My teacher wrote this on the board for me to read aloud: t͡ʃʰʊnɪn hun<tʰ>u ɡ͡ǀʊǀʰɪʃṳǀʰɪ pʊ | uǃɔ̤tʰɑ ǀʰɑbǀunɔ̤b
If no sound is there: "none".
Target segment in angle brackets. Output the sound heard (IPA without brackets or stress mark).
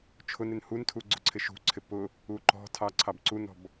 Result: tʰ